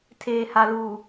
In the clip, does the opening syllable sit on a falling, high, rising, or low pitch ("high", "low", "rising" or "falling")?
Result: low